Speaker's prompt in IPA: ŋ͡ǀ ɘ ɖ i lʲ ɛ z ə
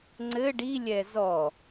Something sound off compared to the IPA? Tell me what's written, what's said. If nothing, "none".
ə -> ɔ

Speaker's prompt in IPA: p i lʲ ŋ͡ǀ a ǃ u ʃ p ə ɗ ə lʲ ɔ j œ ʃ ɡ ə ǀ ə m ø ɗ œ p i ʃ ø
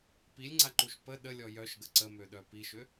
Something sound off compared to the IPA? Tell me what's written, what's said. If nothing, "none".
none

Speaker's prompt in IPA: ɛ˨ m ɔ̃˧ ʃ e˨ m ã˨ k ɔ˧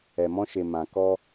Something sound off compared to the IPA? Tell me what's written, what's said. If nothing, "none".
none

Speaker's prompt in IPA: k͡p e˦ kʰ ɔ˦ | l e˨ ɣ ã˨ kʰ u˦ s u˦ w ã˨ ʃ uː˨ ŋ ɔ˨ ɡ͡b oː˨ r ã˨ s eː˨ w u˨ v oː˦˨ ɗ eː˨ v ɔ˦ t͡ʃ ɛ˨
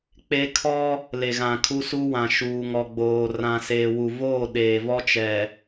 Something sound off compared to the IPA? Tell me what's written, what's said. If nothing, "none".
none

